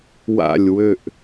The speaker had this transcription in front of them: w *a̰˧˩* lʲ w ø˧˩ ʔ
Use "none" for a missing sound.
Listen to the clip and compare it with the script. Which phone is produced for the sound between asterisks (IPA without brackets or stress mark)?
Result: a̰˧˩